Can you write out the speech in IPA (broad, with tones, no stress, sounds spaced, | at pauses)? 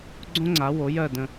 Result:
ɡ͡ǀ õ˥ ŋ͡ǀ a˩˥ w o˩˥ j ɜ˥˩ d ə̃˧